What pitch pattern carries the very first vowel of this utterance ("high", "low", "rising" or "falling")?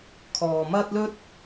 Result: low